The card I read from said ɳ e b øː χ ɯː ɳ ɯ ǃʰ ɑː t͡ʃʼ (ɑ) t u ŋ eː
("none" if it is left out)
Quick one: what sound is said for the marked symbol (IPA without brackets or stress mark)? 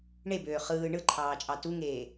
ɑ